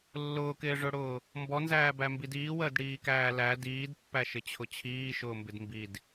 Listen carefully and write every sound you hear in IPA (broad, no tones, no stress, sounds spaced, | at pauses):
lː ʊː k ɪː ʐ ʊ ɽ ʊː | m b ɔ n z æː b æ m b i d iː w əː d ɽ iː k æː l æ d iː d pː æ ʃ ɪ t͡ɕʰ ʊ t͡ɕʰ iː ʃ ʊː m b ɪ d m b i d